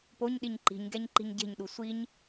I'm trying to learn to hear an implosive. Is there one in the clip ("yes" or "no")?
yes